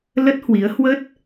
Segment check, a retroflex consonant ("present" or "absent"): absent